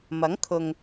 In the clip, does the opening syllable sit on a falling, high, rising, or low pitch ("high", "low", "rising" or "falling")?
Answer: rising